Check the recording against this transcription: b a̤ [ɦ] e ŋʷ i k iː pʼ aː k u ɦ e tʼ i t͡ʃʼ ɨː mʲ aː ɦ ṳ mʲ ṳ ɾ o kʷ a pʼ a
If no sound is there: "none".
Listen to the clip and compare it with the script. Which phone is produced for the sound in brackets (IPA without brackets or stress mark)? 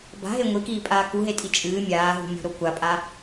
ɦ